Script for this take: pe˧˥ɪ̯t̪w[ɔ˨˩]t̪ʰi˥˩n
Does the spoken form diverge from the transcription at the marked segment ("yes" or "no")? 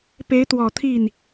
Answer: no